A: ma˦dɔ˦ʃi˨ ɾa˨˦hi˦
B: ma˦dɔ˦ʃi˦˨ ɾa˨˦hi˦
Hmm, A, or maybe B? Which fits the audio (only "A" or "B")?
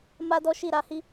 B